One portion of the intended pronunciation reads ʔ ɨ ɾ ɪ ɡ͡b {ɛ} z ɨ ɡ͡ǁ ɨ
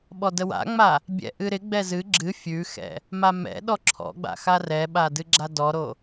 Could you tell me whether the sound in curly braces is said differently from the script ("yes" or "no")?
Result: no